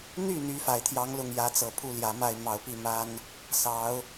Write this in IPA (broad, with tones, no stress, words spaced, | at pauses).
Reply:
n̪y˥˩ n̪y˧˥fa˨˩ɪ̯ t̪ʰjɑ˧˥ŋlʊ˥˩ŋjä˧˥t͡sɤ˨˩ pʰu˥˩ljä˨˩ma˥˩ɪ̯ mɑ˨˩ʊ̯pi˥˩ma˥n | sɑ˧˥ʊ̯